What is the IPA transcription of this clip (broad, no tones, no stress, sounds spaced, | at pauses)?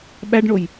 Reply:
ɓ æ ɖ ɳ o j